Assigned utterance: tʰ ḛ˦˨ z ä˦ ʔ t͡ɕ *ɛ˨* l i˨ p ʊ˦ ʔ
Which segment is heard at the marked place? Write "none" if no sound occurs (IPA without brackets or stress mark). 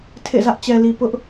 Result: ɛ˨